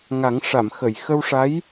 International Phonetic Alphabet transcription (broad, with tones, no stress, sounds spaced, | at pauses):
ŋ a˨˩˦ ŋ ʂ a˨˩˨ m x ə˨˩˨ j x ə˧ w ʂ a˧˥ j